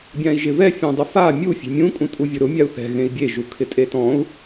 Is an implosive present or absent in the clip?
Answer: absent